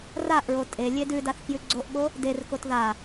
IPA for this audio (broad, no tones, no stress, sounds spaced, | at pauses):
r a ʔ ɹ o tʼ e lʲ e d ʉ d a θ k j ʉ ɡ͡ǀ o ʔ ɠ o | d e r k o t ð a